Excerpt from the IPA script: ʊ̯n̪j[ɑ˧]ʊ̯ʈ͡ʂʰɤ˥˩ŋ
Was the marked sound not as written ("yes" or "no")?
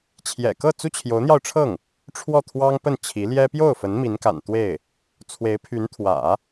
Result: no